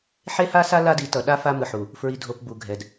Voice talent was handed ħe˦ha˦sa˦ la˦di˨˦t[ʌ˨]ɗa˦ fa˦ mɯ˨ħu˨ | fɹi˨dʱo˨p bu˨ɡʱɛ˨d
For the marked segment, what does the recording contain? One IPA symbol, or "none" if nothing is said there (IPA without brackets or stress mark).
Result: ʌ˨